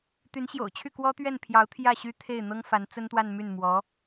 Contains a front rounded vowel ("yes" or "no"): yes